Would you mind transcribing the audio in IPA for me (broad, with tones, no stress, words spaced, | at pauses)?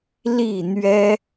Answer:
li˥˨n̪ɥɛ˦